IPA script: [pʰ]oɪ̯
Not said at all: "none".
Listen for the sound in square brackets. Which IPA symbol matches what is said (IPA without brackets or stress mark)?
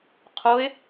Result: qʰ